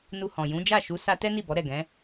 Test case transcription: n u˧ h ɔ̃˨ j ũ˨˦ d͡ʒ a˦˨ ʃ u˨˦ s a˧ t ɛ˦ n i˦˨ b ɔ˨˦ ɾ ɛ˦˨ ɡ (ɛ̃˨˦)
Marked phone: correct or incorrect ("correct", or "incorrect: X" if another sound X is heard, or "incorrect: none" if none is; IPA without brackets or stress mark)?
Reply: correct